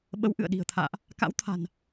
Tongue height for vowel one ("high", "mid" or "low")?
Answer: mid